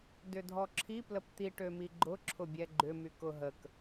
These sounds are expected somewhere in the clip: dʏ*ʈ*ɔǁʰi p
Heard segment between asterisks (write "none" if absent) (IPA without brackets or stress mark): dʱ